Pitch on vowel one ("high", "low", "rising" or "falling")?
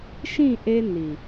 falling